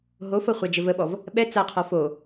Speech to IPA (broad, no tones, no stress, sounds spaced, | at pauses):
ɦ o f ɤ χʷ a d͡ʒ ə v ə ɓ ɔ v | ɓ ɛ t͡s a qʰ ɔ f o